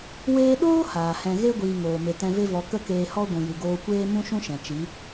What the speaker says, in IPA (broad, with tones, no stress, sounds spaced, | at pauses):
w eː˧ ɗ oː˦ h aː˨ h ɛ̃˧ ɣ e˦ ɡʷ iː˨ ŋ oː˨ m e˨ t ɛ̃˧ v e˦ v ɔ˧ k ə˦ k eː˧ h ɔ˦ ɡʷ ũ˨ j ɨ˨ ɡ oː˧ kʷ eː˦ m ũ˦ ʃ ũ˦ ʃ ɛ̃˨ t͡ʃ i˨˦